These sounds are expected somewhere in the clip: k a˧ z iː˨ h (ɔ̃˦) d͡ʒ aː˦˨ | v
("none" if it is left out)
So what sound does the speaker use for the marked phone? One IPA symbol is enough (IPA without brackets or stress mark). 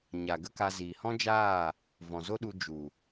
ɔ̃˦